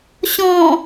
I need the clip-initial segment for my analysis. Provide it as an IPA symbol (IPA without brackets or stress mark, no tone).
ɕ